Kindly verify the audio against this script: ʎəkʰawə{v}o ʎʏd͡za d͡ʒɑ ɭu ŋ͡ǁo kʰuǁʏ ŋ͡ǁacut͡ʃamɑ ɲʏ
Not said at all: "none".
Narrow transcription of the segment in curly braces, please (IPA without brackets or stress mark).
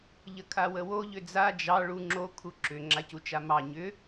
w